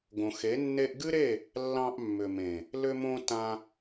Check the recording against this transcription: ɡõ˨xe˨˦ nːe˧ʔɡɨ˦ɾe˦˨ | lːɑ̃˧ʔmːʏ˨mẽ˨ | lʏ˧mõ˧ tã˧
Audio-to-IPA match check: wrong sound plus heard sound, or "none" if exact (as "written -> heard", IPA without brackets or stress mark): none